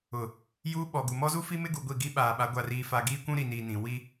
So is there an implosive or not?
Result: yes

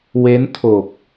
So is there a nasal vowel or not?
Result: no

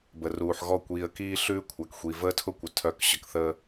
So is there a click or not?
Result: no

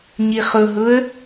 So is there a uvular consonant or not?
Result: yes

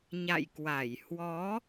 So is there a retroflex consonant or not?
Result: no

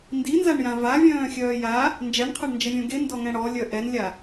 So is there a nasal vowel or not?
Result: yes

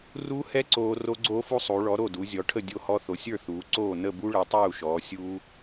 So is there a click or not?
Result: yes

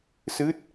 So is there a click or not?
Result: no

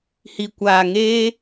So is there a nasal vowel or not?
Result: no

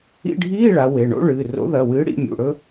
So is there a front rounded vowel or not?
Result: no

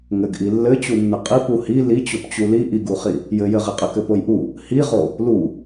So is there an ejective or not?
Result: yes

